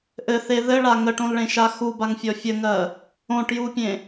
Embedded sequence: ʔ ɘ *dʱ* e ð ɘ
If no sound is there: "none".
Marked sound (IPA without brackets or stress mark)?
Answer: θ